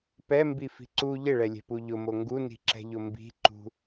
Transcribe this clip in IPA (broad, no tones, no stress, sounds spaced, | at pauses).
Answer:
p ɛ m b i f i̤ ǀ u ʎ ɪ ɭ ɛ lʲ ɛ̤ p u ʎ ʊ m o ŋ ɡ u n i̤ ǁ ɛ̤ ʎ ʊ m b i̤ ǃ ṳ